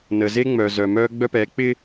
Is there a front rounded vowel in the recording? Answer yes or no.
yes